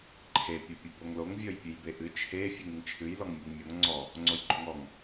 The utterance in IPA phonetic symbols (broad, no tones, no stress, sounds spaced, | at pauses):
ǃʰ e pʲ o pʲ o b o ŋ l o ŋ vʲ ɔ j pʲ ɨ j b e ʔ ɨ t͡ʃʰ e fʲ ɨ ŋ ɨ ŋ t͡ʃʰ ɨ j l ɔ ŋ mʲ ɨ ŋ mʲ o ŋ ŋ͡ǀ ɔ | ŋ͡ǀ o j ɡ͡ǃ o ŋ ɔ ŋ